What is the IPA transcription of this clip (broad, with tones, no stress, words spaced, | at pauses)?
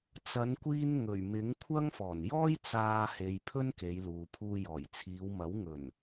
t͡sɐ˨˧nkʷiː˧n ŋɵ˨˩ɥmɪ˨˥ŋ kʷʰɐ˥ŋfɔː˨˩n jɔː˥jt͡saː˧he˨j pʰɵ˥nke˨˧jluː˨pʰuː˧ jɔː˨˩jt͡sʰiː˨˧w mɐ˨˥w ŋɵ˨˩n